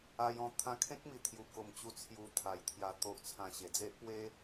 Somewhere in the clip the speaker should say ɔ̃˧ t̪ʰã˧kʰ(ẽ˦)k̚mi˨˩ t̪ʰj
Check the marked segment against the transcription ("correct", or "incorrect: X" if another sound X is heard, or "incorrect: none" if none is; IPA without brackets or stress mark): correct